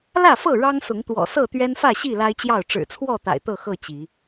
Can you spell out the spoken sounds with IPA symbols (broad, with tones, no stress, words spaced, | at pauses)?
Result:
lä˥˨fɤ˥˨ ɻɑ˦ŋsʊ˨˦ŋt̪wɔ̰˨˩ sɤ˥˨t̪ɥɛ˦nfä˥˨ɕi˥˨ la˦ɪ̯t͡ɕjɑ˥˨ʊ̯ ʈ͡ʂɻ̩˨˩t͡sʰwɔ˥˨ t̪a̰˨˩ɪ̯t̪ɤ˥˨ xɤ˥˨ t͡ɕi˨˦